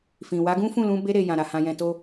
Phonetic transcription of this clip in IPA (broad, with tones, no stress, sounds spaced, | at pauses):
f ĩ˨ w a˨˦ ɡ ũ˦ f ũ˦˨ l ũ˧ b e˧ ɾ e˨ j ã˨ ɾ a˨ h ã˧ j ɛ̃˧ t o˦